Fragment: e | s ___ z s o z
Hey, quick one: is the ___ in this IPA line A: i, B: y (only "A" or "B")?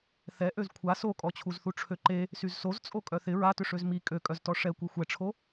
B